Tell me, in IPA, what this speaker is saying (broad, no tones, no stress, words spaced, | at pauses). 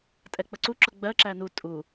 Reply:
tʼɛk͡pəǀu ǁʊɡ͡bɜ ǁænu tʼu